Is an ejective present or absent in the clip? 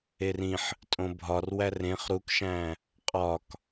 present